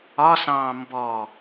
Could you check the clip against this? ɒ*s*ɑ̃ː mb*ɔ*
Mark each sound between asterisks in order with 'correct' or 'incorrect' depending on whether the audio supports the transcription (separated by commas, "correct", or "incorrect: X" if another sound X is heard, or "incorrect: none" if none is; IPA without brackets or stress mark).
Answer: correct, correct